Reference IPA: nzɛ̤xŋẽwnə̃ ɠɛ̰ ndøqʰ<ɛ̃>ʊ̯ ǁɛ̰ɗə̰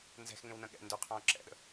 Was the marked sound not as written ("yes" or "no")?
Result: yes